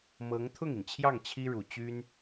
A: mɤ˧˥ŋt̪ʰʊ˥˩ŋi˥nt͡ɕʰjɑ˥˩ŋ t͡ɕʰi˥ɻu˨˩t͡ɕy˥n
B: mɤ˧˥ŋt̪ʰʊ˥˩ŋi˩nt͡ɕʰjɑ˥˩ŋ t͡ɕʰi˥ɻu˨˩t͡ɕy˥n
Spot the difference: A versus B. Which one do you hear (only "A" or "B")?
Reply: B